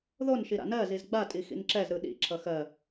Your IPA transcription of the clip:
ðon ʃiɾa̰nɜ zizɡ͡ba tʼixḭnǁɛz ɾɯɗḭ ǁʰʌxɜ

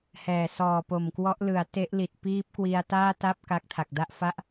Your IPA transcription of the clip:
hɛː˨˩sɔː˨˩po˨˩mkwɔ˦˥ʔ lɯ˩˦a̯ te˦˥ʔli˨˩t̚ piː˦˥p̚kwi˧a̯ taː˥˩ta˥˩p̚ ka˦˥k̚tʰa˨˩k̚da˥˩ʔ fa˥˩ʔ

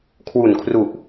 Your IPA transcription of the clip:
kʰwu˨˩nkʰru˨˩ʔ

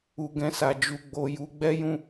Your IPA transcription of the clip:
u˧ɡɛ̃˧sa˧ d͡ʒu˧ɡ͡bo˧ ju˦ ɡ͡bɛ˦jũ˦

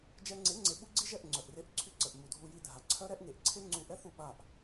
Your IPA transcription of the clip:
d͡ʒɛ˧ŋ͡ǀe˨˦ŋ͡ǀe˨ ɓu˦ɡ͡ǀi˦ʒɛ˦˨ʔ ŋ͡ǀœ˨ʔre˦ʔǀʰy˦ ǀə˨ʔmu˨dʱu˧ji˧ dʱa˨ǀʰœ˦ɾɛ˦ʔ ŋe˨ʔ ǀʰe˦ŋ͡ǀu˧ʔɛ˦θu˦˨ ɓa˦˨ʔ

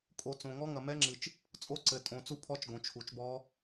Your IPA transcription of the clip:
kʼo˨ t͡sõ˨ŋɔ˦˥ ŋɐ˨mɛ˦˥ŋ͡ǁɨ˨t͡ʃ | t͡sʼo˦˥ǀɘ˨tʼõ˨ t͡su˦˥pʰɔ˦˥t͡ʃ ɡõ˨t͡ʃʰu˨t͡ʃbɔ˦˥

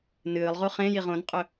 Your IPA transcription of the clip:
nɨːlˠʁu χẽjiʁ õnqʼɵ

